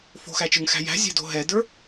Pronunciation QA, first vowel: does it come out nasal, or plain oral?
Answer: oral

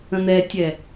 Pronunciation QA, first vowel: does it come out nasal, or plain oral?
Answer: nasal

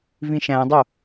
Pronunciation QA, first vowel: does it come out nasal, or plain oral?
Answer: nasal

